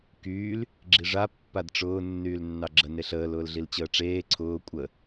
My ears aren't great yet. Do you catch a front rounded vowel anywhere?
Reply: yes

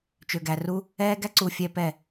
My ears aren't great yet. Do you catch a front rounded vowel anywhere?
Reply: yes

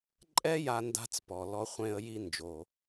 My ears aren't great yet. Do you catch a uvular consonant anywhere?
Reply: yes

